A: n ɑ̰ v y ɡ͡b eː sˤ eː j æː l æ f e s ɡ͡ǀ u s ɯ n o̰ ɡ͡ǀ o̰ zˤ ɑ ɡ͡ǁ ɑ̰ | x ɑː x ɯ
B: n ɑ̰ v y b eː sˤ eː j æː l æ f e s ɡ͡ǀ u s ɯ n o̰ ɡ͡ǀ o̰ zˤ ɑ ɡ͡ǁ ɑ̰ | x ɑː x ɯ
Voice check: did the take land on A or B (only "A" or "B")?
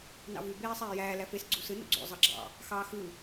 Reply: B